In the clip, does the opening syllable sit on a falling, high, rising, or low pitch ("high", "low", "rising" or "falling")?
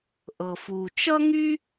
low